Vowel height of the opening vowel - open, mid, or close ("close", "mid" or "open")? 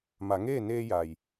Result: open